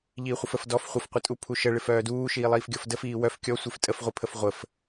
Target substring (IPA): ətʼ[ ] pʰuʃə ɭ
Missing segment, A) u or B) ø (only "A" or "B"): A